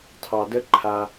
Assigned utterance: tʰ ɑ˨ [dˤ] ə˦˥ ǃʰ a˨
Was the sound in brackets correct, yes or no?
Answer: no